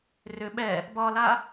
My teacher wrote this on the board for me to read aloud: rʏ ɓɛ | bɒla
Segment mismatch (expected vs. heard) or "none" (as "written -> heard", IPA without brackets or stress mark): none